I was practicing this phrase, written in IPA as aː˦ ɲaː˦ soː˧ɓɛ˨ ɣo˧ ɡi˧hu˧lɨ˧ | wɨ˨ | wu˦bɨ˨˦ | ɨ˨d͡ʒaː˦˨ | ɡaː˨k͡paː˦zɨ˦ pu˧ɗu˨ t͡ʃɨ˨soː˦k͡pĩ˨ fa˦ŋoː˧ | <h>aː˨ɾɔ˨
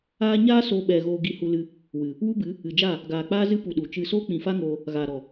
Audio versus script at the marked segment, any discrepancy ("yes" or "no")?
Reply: yes